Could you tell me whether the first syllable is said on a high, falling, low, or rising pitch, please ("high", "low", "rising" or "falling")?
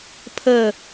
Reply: falling